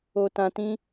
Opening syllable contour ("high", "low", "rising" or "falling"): low